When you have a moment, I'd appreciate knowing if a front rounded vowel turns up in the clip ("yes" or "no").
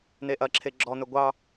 no